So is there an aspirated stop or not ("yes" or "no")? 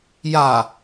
no